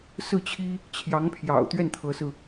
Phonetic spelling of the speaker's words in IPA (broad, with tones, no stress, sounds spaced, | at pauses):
s ɹ̩˥˩ t͡ɕʰ i˥ | t͡ɕʰ j ɑ˧˥ ŋ pʰ j ɑ̰˨˩ ʊ̯ t̪ ɥ ɛ˥˩ n t̪ʰ ɤ˧˥ s ɹ̩˧